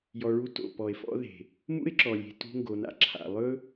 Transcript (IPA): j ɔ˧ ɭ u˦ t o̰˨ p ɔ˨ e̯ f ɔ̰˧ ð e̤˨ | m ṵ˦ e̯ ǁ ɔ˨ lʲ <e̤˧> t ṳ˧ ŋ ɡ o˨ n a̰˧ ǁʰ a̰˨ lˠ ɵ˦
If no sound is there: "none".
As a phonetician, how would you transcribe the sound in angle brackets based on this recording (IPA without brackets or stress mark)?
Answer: e̤˨